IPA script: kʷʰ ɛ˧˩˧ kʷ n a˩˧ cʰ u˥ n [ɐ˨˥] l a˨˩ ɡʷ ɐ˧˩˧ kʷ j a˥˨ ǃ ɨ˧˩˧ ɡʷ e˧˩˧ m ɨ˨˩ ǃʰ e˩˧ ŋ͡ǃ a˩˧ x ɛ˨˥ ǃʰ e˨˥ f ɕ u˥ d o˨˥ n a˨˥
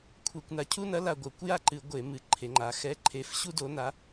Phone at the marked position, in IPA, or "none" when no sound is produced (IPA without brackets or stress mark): ɐ˨˥